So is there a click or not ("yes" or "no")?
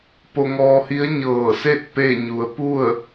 no